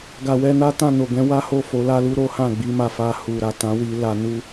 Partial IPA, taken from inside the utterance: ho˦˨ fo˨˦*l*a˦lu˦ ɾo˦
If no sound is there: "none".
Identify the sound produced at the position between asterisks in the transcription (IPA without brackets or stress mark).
l